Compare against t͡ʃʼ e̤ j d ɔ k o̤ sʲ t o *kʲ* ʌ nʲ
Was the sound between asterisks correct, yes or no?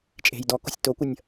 no